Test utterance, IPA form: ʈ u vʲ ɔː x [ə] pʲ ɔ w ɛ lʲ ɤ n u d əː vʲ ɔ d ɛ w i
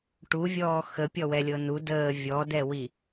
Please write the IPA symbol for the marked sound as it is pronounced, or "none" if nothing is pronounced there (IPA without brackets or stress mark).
ə